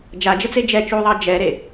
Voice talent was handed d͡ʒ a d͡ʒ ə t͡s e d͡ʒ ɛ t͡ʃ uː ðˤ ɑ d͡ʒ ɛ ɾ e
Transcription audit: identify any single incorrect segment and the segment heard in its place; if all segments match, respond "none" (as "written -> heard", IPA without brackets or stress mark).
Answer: none